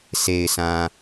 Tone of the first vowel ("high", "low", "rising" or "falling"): low